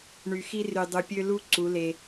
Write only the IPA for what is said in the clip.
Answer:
ɳ y˨ x i˦ r y˨ dˤ u˨ pʲ ø˦ l u˦ ǀ u˨˦ l e˦

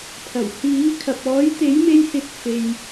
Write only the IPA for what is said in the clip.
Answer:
pʰ ɐ˨˩ w h iː˨˥ kʰ ɐ˨ p̚ ɔː˨˥ j t̪ e˨˥ j m e˧ j s ɪ˨˥ k̚ f e˨ j

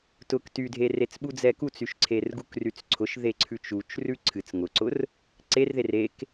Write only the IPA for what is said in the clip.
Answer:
t ʊ k t y dʱ e r e t͡s ɓ u d͡z ɛ k u t͡s y ʃ ǀʰ e r ɡ u k r y t͡s ǀʰ ʊ ʃ ð e ǀʰ ʉ t͡ʃ u t͡ʃ r ʉ ǀʰ ɨ t͡s ŋ ʊ ǀ ʊ r | ǀ e r ð e r e k

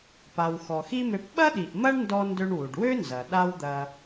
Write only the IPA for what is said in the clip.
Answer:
p a˩ w x ɔ˩ x i˥ m ø˧ p ɓ ɐ˥ ɗ i˩ ʔ m ɐ˥ ɳ n d ɔ˧ n d ø˧ ɳ w u˩ ɖ w ø˥ n z ɐ˩ ɗ a˥ w d̪ ɐ˧

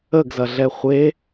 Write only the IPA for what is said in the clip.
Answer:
ə ɡ z ɐ ɮ ɛ χʷ e

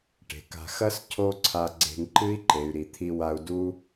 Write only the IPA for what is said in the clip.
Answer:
ʈ e̤˨ k a̤˧ x ɐ˦ s cʰ o˦ ǀʰ a˧ ɡ͡ǀ e̤˧ ŋ ǃ ɨ˦ i̯ ǃ e˨ y̯ ɾ i˨ t̪ʰ i˧ w a˧ u̯ d u˦

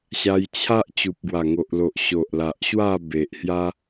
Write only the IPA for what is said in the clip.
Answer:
ɕ a˧ j t͡ɕʰ a˦ ʔ t͡ɕ u˨ p̚ ɡ w a˨˩ ŋ o˨ ʔ l o˨ ʔ ɕ o˨ ʔ l a˨ ʔ ɕ w a˥˧ b e˨ ʔ h j a˦

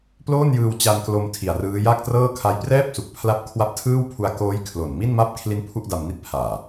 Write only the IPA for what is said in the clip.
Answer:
p l oː˥˩ n j ɯː˧ w t͡ɕ a˧ n k l o˧ m tʰ i˨˩ a̯ r ɯː˦˥ j aː˥˩ k̚ t r ɤː˥˩ kʰ a˦˥ j p r ɛː˥˩ p̚ s u˨˩ k̚ pʰ l a˦˥ p̚ kʰ w a˦˥ p̚ tʰ ɯː˥˩ w pʰ u˧ a̯ k oː˦˥ j kʰ l o˨˩ n m i˥˩ n m a˥˩ p̚ kʰ l i˦˥ n pʰ u˥˩ ʔ d a˧ m n i˥˩ t̚ pʰ aː˨˩

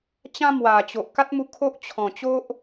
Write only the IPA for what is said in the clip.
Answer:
t͡ɕ ã˦ m w a˨˩ t͡ɕ o˨ ʔ k a˦ t̚ m u˧ kʰ o˦ ʔ t͡ɕʰ ɔ̃˨˩ t͡ɕ o˦ ʔ

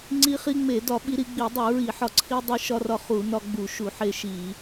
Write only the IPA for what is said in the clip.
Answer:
ŋ͡ǀ i˧ χ i˧ ŋ͡m e˧˩˧ d ɒ˧˩˧ ɓ i˧ ɾ i˧ ɡ͡b i˧˩˧ dˤ u˧˩˧ ɹ i˧˩˧ ħ ɒ˧˩˧ ǀʰ i˧ dˤ i˧ ʃ ɒ˧ r ɒ˧ χ u˧˩˧ n ɒ˧ ɡ͡b u˧˩˧ ʃ u˧˩˧ ħ e˧ ʃ i˧˩˧

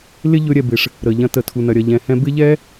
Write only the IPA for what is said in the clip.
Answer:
l ɪ˦ ʎ ɵ˧ ɾʲ ɛ˨ b ɪ˨ ʂ | ɾ ə˨ ʎ ɐ̃˧ t ə˨ tʰ u˨ n ɐ˨ ɾʲ ɐ˨ ʎ ɛ̃˨ h ɛ̃˧ b ɪ˦ ʎ ɛ˦

